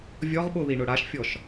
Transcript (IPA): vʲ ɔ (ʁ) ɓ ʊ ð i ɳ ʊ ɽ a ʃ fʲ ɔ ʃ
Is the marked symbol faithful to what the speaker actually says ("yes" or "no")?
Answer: yes